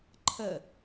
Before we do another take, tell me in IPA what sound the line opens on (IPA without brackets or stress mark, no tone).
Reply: ǃʰ